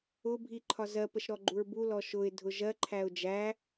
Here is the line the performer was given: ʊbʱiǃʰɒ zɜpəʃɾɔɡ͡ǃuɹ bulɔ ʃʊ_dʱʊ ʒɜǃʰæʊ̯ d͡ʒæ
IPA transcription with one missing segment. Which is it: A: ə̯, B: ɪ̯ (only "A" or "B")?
B